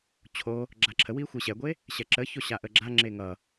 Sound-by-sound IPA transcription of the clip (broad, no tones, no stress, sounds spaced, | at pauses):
t͡ɕʰ o | ɡ͡ǁ a ǁʰ ə w i xʷ e ɕ ɛ ɡʷ e | ɕ ɛ ǁ ə ç o ɕ a ʔ ə ɡ͡ǁ a ŋ͡ǁ e ŋ ʌ